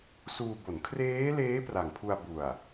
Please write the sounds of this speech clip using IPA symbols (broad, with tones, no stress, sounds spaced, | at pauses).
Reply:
s uː˧ b o˩˦ n kʰ r eː˦˥ l eː˦˥ p r a˨˩ ŋ pʰ u˧ a̯ b u˨˩ a̯